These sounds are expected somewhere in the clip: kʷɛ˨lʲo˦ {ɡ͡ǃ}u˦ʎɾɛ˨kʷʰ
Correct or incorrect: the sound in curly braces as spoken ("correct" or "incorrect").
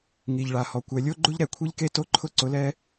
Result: correct